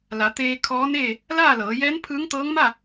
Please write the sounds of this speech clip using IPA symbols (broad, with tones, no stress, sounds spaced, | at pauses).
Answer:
l a˩˧ t̪ eː˧ kʰ ɔː˧˥ n eː˥˨ | l aː˥˨ l ɤː˩˧ j ɛː˧˥ n pʰ ɯː˧˥ ŋ t̪ ɤː˧˥ ŋ m a˥˨